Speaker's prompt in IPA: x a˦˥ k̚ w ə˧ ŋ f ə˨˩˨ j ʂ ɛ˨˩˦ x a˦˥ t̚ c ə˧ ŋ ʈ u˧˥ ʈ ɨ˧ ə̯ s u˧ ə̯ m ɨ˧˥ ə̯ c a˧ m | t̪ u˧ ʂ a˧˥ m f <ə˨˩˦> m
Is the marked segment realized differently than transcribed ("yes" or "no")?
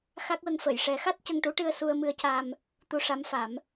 yes